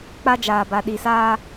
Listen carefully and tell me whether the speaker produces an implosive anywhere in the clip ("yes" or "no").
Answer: yes